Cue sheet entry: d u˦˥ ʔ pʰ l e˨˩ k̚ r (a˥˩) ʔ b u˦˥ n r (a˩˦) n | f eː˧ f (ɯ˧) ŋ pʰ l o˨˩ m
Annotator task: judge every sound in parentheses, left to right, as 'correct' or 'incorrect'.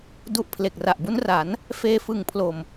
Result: incorrect, correct, incorrect

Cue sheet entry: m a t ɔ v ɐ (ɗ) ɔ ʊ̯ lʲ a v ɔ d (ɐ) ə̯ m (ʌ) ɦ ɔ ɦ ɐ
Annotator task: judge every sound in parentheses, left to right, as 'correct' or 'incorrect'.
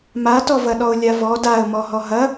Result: correct, incorrect, incorrect

